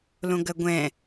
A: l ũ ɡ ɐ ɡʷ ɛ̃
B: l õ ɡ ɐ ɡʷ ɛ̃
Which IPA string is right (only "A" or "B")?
B